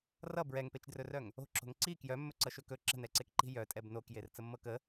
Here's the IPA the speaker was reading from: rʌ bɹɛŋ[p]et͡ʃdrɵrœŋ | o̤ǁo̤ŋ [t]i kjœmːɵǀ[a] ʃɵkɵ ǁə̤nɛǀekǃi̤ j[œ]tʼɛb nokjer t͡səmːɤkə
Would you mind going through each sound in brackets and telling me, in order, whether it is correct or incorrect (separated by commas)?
correct, incorrect, incorrect, correct